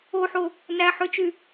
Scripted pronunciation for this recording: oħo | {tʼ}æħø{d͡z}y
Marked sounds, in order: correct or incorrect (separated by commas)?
incorrect, incorrect